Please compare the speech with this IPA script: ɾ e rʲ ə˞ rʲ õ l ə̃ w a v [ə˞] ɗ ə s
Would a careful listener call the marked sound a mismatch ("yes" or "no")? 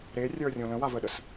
yes